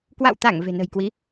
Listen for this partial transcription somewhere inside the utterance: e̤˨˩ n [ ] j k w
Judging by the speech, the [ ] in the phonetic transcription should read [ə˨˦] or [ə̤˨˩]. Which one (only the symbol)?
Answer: ə̤˨˩